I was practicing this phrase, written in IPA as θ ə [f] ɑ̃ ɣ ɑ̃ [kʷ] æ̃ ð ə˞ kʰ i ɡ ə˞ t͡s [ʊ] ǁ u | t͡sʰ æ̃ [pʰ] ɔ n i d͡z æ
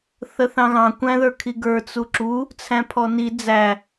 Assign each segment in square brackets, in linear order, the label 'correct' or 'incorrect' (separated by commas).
incorrect, correct, incorrect, correct